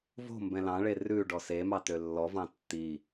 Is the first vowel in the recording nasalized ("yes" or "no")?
no